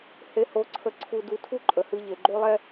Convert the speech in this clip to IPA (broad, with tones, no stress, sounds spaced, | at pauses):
h e˧ h o˧ ǀʰ ə˧ ǀʰ u˧ d u˧ tʰ u˦ ǃʼ ə˨ h ɨ˧ ʎ e˨ ɡ͡ǃ o˦ lˠ ɛ˦